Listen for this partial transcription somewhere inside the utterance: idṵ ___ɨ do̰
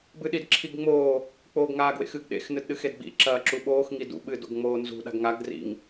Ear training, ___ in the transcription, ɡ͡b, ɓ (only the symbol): ɓ